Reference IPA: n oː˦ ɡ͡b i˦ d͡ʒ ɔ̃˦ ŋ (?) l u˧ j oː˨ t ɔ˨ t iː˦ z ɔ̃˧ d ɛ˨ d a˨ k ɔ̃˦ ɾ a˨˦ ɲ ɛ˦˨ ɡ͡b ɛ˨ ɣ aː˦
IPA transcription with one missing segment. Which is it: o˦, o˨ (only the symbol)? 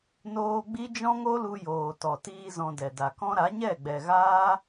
o˦